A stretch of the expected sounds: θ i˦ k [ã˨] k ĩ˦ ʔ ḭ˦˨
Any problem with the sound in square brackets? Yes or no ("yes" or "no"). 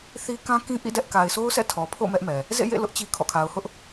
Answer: yes